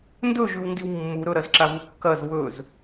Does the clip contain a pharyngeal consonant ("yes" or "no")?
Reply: no